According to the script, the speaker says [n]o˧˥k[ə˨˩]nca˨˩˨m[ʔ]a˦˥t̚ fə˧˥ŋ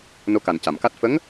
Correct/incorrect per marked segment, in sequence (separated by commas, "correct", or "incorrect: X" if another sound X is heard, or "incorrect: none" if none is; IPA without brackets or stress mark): correct, incorrect: a˨˩, incorrect: k